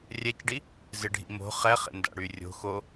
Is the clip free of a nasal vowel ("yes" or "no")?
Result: yes